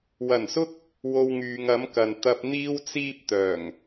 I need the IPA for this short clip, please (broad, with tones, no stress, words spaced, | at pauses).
wɐ˨˩nsʊ˥k̚ | wo˧wŋyː˨˧ŋ ɐ˨˥mkɐ˨n t̪ɐ˧p̚n̪iː˥wt͡siː˥p̚ t̪œː˨˩ŋ